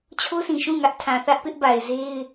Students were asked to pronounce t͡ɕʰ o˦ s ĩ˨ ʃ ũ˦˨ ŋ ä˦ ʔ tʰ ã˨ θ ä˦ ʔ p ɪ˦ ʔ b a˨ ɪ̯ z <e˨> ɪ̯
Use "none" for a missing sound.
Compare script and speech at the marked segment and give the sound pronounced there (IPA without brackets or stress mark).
e˦